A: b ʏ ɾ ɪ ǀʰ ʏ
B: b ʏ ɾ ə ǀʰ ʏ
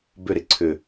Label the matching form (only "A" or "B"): A